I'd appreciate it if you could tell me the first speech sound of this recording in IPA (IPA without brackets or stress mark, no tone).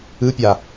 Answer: ɯ